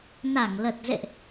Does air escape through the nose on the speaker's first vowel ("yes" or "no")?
no